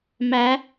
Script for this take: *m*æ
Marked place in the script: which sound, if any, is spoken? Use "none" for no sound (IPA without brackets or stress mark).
m